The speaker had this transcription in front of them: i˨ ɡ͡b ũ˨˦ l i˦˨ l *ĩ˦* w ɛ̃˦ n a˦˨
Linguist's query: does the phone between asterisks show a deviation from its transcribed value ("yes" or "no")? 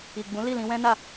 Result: yes